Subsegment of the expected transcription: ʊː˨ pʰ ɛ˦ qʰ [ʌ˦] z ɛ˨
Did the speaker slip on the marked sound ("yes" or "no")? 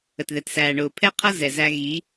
no